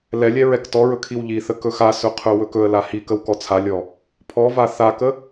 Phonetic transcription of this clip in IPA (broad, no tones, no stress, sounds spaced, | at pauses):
l ɛ lʲ ɛ ɹ ɛ k t ɔ ɹ ɵ kʰ i w ʎ i θ ə k ɵ x a s ɵ qʰ ɵ w ɵ k ɵ ə̯ l a h i k ə w k ɔ t͡sʰ a lʲ ɔ | pʰ ɔ v a θ a k ə